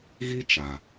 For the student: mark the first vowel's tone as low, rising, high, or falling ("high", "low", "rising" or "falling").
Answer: high